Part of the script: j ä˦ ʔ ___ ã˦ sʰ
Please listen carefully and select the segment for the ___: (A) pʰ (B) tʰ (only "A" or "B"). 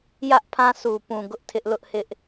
A